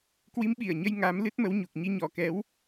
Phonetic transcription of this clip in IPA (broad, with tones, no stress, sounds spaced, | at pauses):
k w i˨˦ m ɓ i˧˩ ə̯ ɲ ə˧ j ŋ a˨˦ m l ɨ˦˥ t̚ m ə˨˦ w ɲ u˨˩ k̚ ɲ i˨˦ ɲ ɔ˨˩ k ɛ˨˦ w